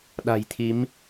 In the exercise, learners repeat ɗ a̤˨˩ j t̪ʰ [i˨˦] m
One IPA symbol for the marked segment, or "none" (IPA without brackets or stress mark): i˨˦